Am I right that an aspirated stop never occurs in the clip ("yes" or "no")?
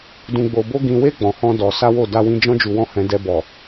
yes